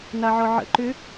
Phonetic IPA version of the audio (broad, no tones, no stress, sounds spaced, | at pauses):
n a ʕ ɔ ʕ ə̰ ǃ ʏ